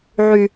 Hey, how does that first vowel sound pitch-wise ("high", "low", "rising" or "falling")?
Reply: high